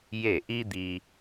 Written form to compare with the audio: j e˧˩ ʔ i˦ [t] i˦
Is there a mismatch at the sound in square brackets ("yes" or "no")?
yes